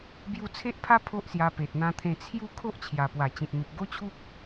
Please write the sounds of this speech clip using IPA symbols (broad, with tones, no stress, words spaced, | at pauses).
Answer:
bju˥˧ t͡sʰe˦ʔpʰa˦ pʰo˦ʔsja˧ pe˨t̚n̪ã˧t̪ʰẽ˧ t͡sʰju˥˧ kʰo˦ʔt͡ɕʰja˨˩pwa˨˩ t͡ɕĩ˨t̚n̪u˨p̚ ɡo˦t͡ɕʰu˦k̚